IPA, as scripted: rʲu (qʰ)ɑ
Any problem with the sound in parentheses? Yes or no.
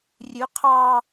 no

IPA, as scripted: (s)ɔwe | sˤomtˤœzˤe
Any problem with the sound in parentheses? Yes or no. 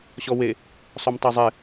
yes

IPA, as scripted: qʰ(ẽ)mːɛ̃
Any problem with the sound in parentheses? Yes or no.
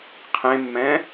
no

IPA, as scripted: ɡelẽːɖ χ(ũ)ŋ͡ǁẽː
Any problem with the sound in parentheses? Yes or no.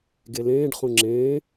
no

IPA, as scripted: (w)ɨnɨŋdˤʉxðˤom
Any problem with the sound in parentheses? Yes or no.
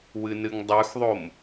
no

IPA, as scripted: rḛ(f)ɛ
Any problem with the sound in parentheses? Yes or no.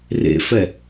no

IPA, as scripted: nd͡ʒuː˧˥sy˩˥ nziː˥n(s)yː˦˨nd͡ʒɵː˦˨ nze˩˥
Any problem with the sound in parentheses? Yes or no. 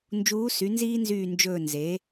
yes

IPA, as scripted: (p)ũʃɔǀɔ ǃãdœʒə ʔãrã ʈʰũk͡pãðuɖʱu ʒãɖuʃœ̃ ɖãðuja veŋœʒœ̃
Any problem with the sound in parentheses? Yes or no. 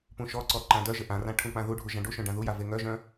no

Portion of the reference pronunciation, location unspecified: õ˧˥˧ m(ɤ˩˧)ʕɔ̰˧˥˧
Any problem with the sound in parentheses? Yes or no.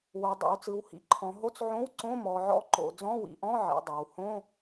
yes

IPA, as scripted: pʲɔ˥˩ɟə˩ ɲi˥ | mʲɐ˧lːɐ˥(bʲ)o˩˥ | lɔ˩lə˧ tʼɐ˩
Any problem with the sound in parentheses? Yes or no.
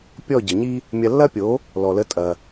yes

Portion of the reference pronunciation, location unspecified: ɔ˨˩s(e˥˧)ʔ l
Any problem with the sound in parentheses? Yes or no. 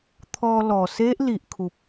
yes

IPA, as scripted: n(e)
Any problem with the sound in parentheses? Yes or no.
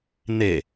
no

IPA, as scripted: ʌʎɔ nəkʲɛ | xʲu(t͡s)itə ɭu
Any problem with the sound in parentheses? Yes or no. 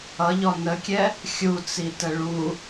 no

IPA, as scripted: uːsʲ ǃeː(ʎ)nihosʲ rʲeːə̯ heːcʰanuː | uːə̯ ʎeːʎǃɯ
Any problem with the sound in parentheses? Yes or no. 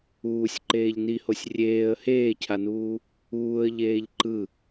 no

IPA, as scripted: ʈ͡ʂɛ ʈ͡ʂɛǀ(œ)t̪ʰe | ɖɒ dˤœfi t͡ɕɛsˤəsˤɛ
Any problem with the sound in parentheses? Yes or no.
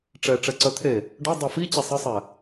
no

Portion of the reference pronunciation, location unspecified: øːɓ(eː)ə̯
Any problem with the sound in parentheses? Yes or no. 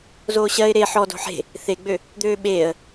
no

